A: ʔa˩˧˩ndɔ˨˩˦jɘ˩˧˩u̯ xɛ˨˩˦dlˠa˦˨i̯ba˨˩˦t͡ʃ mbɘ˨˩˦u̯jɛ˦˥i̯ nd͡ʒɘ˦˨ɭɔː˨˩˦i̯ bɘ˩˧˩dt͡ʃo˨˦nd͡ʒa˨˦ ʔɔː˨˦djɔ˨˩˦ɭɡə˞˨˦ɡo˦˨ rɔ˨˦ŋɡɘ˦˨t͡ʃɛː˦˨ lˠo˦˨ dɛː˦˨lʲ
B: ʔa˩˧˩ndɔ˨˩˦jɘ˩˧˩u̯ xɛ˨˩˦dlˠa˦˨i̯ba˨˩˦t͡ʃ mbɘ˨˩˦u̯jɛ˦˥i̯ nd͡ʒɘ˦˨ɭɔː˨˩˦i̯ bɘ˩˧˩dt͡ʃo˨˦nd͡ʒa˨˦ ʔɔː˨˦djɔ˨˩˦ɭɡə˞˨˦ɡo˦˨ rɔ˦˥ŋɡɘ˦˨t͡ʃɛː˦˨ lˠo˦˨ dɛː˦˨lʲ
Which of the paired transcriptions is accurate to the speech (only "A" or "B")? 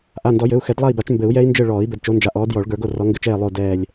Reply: A